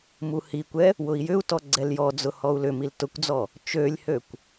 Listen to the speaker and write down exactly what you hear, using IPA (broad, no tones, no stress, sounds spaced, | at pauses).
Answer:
m u h i kʷ ɛ | w ʊ i̯ j ʏ u̯ t ɔ ɡ͡ǀ ɛ l j ɔ d͡z ʊ h ɔ u̯ l ʏ m i l t ʊ kʷ d͡z ɔ | t͡ʃ ø lʲ h ø kʷ